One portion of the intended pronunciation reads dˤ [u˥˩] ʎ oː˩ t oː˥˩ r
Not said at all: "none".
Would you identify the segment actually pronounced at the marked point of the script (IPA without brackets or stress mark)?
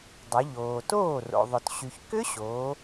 u˩˧